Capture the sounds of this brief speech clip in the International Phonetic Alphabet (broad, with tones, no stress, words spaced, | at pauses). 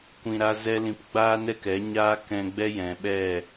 kʷĩ˧ɾa˦ zɛ˦lĩ˧p ɡ͡baː˦nɛ˦kɛ˨˦ ɲaː˦kɛ̃˧ɡ͡bɛ˦jɛ̃˨ ɓɛ˦˨